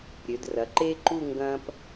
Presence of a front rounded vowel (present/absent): present